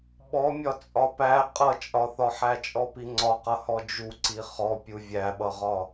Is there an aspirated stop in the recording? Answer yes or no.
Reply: no